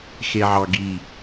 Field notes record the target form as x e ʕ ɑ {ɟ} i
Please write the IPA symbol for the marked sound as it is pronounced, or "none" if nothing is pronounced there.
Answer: ɡ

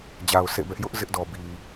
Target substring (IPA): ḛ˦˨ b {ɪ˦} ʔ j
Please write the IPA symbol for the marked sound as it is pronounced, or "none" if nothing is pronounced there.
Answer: ɛ˦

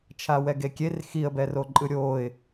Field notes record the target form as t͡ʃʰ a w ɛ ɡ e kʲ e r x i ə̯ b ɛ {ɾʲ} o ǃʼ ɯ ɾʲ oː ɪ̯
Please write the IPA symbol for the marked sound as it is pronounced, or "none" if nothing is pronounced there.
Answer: r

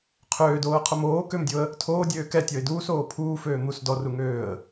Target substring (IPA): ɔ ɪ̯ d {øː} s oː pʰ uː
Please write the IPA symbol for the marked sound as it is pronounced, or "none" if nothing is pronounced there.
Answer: uː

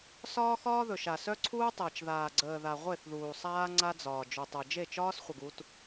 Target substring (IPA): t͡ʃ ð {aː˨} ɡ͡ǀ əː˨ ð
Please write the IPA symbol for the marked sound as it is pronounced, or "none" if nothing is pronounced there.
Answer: aː˨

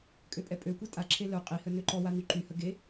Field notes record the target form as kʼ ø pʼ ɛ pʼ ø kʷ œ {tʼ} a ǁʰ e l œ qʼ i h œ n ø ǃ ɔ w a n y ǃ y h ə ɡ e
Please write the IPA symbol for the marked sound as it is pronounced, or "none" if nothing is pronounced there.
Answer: tʼ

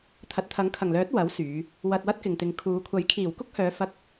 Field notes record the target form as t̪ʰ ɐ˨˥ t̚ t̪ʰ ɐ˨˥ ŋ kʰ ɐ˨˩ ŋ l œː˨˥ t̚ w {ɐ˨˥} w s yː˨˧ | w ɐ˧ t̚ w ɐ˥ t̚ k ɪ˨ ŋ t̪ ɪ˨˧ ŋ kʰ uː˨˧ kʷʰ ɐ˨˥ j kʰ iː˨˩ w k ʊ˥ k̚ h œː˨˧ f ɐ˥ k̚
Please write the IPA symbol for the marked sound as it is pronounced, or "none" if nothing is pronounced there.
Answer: ɐ˨˥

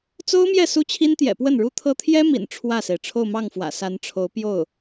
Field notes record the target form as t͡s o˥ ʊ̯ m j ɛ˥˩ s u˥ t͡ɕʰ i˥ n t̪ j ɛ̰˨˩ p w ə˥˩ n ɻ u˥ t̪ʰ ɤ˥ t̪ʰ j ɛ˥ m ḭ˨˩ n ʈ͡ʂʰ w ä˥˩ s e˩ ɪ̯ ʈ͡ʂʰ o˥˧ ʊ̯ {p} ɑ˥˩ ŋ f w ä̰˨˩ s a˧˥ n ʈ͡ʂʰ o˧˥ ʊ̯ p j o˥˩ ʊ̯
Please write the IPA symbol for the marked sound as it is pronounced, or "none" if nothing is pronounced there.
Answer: m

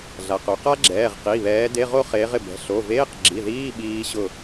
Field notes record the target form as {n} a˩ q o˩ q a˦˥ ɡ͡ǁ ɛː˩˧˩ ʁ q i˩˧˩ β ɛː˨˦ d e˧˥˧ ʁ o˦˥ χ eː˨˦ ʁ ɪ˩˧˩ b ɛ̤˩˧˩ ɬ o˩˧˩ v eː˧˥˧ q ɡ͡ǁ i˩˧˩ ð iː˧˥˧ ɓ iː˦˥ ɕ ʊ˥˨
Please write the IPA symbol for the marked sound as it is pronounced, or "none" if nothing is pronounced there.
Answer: ɮ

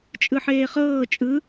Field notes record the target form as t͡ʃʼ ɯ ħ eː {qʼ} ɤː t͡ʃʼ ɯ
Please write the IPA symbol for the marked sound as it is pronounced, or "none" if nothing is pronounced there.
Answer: χ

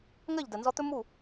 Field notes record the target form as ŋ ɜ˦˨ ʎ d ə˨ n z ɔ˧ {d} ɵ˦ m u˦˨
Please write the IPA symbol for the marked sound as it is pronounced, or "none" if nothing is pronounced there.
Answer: t̪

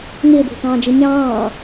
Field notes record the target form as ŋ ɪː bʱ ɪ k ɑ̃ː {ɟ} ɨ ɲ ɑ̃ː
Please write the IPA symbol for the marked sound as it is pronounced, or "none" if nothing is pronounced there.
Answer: d͡ʒ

